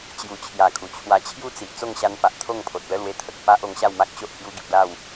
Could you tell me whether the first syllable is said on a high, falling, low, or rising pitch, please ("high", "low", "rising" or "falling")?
low